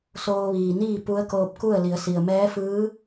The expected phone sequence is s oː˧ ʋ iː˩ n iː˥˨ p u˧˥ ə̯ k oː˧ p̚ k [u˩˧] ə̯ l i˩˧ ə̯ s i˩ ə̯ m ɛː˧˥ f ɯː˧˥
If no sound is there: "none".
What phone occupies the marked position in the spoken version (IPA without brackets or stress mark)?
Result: u˥˨